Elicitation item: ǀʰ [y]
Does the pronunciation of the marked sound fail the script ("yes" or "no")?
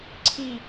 yes